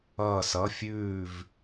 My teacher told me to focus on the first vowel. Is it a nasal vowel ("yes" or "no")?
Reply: no